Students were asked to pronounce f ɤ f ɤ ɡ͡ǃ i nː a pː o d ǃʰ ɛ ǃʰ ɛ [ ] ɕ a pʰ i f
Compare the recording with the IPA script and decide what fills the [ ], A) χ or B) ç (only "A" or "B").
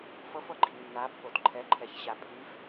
B